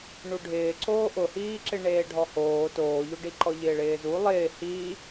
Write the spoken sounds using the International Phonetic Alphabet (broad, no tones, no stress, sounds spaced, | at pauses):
ɳ u ɖʱ ɪː ǀ oː ʔ ʊ h iː ǁ ɪ ɳ eː ɖʱ ɔ h oː t oː ʎ o ɖ i ǃ ɔ ʎ ɪː ɭ ɪː z u lˠ ɪː h iː